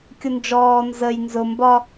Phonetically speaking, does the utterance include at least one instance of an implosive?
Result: no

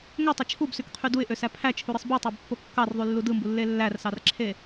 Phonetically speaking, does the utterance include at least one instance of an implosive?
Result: no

